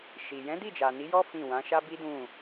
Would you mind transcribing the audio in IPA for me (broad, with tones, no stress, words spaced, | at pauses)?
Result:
ʃi˨ jɛ̃˨˦ di˦˨d͡ʒa˨ ni˨˦jɔ˦ fĩ˦˨ wã˨˦ʃa˦bi˦dũ˦˨